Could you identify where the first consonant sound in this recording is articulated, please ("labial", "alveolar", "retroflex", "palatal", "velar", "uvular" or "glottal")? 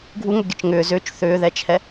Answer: velar